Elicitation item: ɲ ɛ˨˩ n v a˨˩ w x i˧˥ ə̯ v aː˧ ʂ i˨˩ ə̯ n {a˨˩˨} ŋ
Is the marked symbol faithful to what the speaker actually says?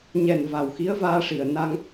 no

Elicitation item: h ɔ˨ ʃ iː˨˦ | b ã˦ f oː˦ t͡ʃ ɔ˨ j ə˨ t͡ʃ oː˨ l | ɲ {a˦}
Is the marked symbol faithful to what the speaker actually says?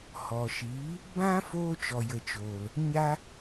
no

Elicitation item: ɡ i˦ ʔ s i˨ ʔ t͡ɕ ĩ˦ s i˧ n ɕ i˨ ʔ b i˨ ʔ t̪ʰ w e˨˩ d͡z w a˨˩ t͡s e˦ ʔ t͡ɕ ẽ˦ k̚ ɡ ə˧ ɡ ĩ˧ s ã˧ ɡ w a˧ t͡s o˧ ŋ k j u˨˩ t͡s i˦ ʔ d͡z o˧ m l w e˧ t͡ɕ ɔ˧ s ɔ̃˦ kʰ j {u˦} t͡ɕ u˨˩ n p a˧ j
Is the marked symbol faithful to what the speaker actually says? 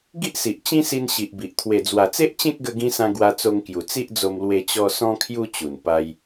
yes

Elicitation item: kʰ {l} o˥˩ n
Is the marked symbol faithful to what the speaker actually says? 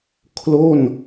yes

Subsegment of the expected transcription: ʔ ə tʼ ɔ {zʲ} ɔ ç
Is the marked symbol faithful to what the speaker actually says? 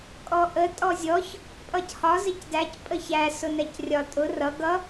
yes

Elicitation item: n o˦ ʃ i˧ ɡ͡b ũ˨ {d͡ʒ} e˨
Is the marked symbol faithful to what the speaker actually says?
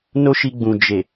yes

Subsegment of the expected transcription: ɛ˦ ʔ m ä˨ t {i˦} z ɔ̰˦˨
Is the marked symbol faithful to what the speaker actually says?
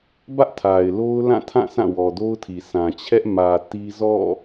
yes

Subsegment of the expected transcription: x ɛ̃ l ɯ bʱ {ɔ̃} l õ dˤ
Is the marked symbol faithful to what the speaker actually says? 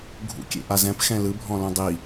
yes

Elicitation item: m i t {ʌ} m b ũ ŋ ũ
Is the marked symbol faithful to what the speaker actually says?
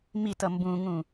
yes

